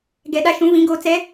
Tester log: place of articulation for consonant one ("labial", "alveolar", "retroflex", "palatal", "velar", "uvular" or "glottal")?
velar